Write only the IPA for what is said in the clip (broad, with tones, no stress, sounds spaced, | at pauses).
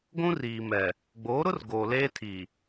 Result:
ɡʷ ũ˦ r iː˨ m ɛ˨ | ɡ͡b oː˨˦ ɾ ʊ˦ r ɡ oː˨ l eː˦ tʰ iː˨